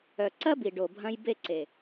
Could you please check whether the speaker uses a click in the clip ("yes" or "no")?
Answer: yes